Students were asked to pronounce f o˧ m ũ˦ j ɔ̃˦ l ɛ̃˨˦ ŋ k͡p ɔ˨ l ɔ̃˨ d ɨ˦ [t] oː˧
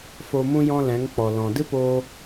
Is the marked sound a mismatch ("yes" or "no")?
yes